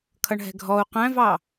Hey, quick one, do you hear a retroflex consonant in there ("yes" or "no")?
yes